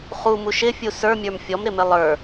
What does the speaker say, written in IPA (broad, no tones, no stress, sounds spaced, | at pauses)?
χ u m u ʃ ɪ fʲ u s ə˞ mʲ ə˞ m fʲ ɔ m ɾ ɪ m ɪ lˠ ə˞